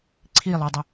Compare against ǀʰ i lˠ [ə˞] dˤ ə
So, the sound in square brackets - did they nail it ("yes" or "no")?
yes